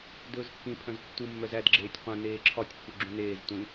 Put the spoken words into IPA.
d ɵː z kː ĩ pʰ œ̃ z tː u mː œ z æ d ɡ͡ǁ eː tʲ qʷ œ̃ n eː ǁʰ ɒ tʲ pː u ɡ͡ǁ ũ n eː z tʷ ĩ

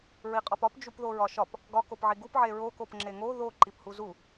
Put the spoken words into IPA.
ɹ i qʼ ɒ p ɒ p d͡ʒ u p ð o ɹ ɒ ʃ ɒ p | ɡ ɒ k o p ʕ i ɡ u p ʕ e ɹ o k o p ŋ͡ǁ e ŋ o ð o ǃ i p h u z u

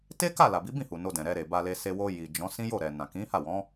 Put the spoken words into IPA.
t e˦ k a˦˨ l a˨ b i˨˦ b ĩ˦˨ h u˨ n o˧ d ɛ̃˨ ɾ ɛ˧ ɾ e˨ b a˧ l e˧ s e˧ w o˧ j i˨ d͡ʒ ɔ̃˨˦ s ĩ˦ j o˦˨ ɾ ɛ˨ n ã˨ k ĩ˨˦ h a˦˨ w ɔ̃˨˦

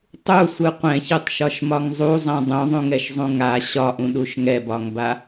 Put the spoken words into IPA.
tˤ u sʷ ɯ qʷ ɛ̃ ç ɯ tˤ ʃ ɒ ʃ m ɒ ŋ zˤ u zˤ ɛ̃ dˤ ũ ðˤ ũ ŋ ɛ ʃ zˤ ũ ŋ a ɕ ɒ ʔ ũ ɗ u ʃ ŋ ɛ b ɒ ŋ b a

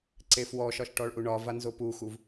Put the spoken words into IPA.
ǀ e f w ɔ ʃ ɒ ʃ ʈ ɔ ɭ ʔ u ɳ ɒ v a n z o p u x u v

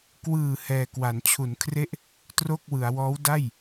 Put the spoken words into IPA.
k w ɯː˨˩ h ɛː˨˩ k w a˩˦ n t͡ɕʰ u˩˦ n kʰ r e˥˩ ʔ | t r o˥˩ k̚ w ɯ˩˦ a̯ w ɔː˦˥ w d a˥˩ j

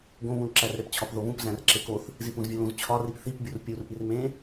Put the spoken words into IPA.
ɡ õ β ũ l ǁ æ r ɾ e p t͡ɕʰ ɒ p ð o β ũ p z æ̃ r ǁ e k o θ | z i p ũ z vʲ u l ũ z t͡ɕʰ ɒ r i p θ i p bʲ u r pʲ u r ʔ i r m ẽ

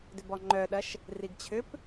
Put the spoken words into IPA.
d ʏ b ɔ ŋ͡ǃ œ ɗ ɐ ʃ | r i ɡ t͡ɕʰ ʏ p

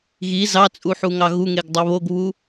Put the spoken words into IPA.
ɣ i z ɑ t͡sʼ u ħ u ŋ ɑ ɣ u ŋ e ɡ dˤ o β o ɡ β u

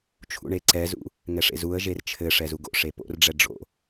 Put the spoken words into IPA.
t͡ʃʰ ṵ ɳ e ǀ ɛ z ṵ | ŋ ɛ ʂ ḛ z u ə̯ ʒ e r t͡ʃʰ ɘ ʂ ɛ z u ɡ o̰ ʂ e p o̰ r ɖ͡ʐ ɛ ɖ͡ʐ o̰

